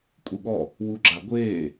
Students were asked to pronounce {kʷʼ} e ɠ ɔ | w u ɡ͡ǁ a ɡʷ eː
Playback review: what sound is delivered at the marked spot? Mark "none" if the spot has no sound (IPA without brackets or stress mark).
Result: kʷʼ